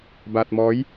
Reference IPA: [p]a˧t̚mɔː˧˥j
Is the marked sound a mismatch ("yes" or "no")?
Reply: yes